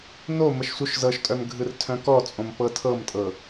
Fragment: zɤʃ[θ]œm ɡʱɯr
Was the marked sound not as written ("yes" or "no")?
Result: yes